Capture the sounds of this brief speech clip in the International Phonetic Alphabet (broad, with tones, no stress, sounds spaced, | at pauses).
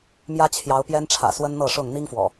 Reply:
m j ä˦ t͡ɕʰ j ɑ˨˦ ʊ̯ p j ɛ˦ n ʈ͡ʂʰ ä̰˨˩ s w ə˦ n n̪ ɤ˥˨ ʂ ʊ˥˨ ŋ n̪ i˦ ŋ f w ɔ̰˨˩